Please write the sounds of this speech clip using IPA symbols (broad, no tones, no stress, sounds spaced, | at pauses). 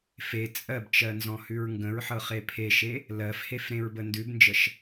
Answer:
f e t͡sʼ ɜ b t͡ʃ ɜ n z ɔ̃ h ʉ ɹ ŋ ɡ ə̃ ɹ ħ ɤ χ e pʰ e ʃ e | l ɜ f h e f ɾ ẽ ɹ b ə n d ʉ b n d͡ʒ ə ʃ